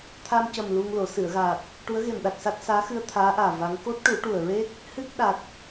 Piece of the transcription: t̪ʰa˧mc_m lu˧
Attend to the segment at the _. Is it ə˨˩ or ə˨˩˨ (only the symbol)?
ə˨˩